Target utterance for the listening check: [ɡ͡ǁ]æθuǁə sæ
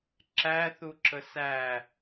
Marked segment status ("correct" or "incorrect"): incorrect